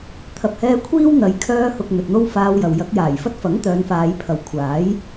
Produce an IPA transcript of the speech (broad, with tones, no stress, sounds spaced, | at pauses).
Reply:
t̪ʰ ɐ˨ p̚ h ɛː˧ kʷʰ iː˥ w n̪ ɐ˨˧ j kʰ œː˧ h ʊ˨ k̚ n̪ ɵ˨ t̚ n̪ o˥ w f aː˧ w j ɐ˨ w j ɐ˨˥ k̚ j aː˨˩ j f ɐ˥ t̚ f ɐ˨˥ ŋ t̪ œː˨˧ n f aː˨˧ j pʰ ɐ˨˧ w kʷʰ aː˨˥ j